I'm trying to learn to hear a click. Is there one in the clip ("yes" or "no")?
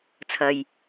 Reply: no